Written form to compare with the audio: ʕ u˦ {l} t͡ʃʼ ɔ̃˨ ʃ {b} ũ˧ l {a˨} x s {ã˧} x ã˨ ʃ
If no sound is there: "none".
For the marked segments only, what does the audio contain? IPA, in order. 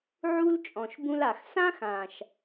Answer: l, b, a˨, ã˦

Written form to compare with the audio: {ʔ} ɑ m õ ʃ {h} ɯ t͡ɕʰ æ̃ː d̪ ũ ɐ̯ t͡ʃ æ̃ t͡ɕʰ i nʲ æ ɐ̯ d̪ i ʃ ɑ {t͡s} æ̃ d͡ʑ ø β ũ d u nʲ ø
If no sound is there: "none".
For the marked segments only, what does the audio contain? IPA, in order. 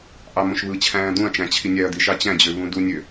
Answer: ʔ, β, t͡ɕ

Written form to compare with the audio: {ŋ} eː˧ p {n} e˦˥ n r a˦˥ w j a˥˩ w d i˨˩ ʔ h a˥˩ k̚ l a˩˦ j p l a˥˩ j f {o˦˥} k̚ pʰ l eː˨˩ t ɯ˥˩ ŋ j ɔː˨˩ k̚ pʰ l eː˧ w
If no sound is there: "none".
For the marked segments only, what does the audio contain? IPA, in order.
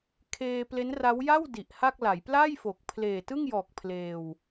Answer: kʰ, l, o˨˩

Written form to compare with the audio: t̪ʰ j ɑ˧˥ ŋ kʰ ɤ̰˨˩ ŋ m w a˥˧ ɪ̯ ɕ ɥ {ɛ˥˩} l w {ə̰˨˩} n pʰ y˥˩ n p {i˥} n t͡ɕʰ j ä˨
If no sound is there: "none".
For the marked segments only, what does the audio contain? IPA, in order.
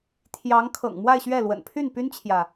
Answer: ɛ˥˩, ə̰˨˩, y˥

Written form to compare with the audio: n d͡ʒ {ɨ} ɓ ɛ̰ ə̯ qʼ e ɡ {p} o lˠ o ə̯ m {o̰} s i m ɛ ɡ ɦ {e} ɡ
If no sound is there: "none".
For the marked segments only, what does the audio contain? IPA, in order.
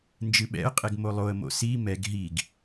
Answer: ɨ, m, o̰, i

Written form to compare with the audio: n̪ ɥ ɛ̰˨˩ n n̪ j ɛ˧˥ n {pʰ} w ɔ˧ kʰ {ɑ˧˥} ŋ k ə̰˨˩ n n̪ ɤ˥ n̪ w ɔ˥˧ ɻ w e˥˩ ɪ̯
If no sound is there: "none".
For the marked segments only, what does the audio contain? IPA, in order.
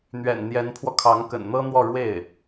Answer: pʰ, ɑ˧˥

